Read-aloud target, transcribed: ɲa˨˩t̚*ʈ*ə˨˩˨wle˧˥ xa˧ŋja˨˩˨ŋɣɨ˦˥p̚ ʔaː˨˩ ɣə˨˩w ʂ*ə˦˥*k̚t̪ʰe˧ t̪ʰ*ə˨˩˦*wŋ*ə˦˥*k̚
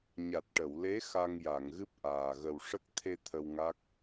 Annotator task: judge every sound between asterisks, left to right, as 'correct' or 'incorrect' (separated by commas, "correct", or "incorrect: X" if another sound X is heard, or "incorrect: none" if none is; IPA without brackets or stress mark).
correct, correct, incorrect: ə˧, incorrect: a˦˥